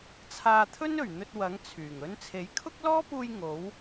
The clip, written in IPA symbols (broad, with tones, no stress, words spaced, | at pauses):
t͡sʰaː˧t̪ʰɵ˥nɵ˨˩ɥn̪ɵ˧t̚ wɐ˨˥ŋ t͡sʰyː˨˩ŋ ɵ˧nt͡sʰe˨˥jkʰʊ˥k̚ lɔː˥puː˧j ŋo˨˥w